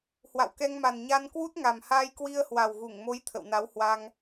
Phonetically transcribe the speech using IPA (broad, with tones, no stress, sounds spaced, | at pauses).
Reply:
h w a̰˧˨ w k ɛ˧ ŋ m a˨˩ n ɲ a˧ n k w u˦˥ t̚ ŋ a˨˩ m h aː˧ j k w i˧ ə̯ h w a˨˩ w ɣ u˧˩ ŋ m o˨˦ j t̪ʰ ə̰˧˨ w n a˨˦ w h w a˧ ŋ